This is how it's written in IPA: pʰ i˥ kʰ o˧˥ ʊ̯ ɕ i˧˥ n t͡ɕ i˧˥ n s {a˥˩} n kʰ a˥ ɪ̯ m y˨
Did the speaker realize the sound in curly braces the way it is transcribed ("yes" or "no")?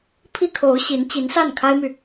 yes